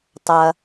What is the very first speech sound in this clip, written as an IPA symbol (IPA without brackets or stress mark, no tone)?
tˤ